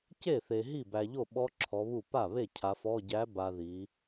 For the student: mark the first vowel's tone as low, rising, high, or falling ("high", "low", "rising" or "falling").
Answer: falling